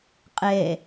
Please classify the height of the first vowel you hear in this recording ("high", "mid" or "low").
mid